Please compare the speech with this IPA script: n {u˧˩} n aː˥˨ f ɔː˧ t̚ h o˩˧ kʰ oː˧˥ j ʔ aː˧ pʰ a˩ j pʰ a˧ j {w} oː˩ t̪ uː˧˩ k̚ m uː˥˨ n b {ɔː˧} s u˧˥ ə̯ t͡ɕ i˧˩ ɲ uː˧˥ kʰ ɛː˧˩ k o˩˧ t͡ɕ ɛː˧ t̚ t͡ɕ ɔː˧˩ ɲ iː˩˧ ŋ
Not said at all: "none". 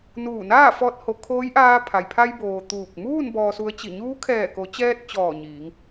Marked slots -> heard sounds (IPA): uː˧˩, b, ɔː˧

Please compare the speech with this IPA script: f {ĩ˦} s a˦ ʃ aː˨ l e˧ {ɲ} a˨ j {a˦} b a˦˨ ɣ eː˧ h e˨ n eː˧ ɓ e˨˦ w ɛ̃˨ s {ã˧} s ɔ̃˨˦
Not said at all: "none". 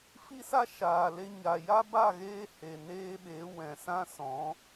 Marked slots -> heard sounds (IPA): i˦, ɲ, a˦, ã˧

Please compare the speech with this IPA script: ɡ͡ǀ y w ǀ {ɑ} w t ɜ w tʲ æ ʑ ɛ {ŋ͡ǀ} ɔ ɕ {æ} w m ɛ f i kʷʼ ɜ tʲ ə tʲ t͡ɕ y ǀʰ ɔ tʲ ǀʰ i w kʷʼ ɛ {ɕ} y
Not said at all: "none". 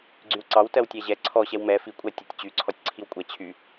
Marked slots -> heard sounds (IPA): ɑ, ǀʰ, ɛ, t͡ɕʰ

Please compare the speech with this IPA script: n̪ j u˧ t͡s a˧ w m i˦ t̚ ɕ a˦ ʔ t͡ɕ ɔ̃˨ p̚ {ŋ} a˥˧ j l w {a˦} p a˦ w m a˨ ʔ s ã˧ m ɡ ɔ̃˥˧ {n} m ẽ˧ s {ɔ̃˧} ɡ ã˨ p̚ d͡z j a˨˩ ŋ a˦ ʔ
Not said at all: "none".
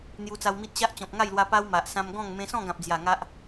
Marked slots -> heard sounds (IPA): ŋ, a˧, ŋ, ɔ̃˥˧

